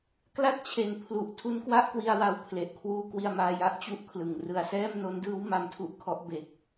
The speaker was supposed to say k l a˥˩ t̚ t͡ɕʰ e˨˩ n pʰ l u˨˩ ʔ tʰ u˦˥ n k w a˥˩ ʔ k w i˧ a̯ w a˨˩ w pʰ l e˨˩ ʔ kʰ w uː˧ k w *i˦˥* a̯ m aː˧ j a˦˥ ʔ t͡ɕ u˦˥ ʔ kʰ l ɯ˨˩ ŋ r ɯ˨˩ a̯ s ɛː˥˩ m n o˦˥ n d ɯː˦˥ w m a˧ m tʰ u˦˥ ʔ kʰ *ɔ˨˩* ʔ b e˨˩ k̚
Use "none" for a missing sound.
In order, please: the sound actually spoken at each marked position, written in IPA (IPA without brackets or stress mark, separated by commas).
i˧, ɔ˦˥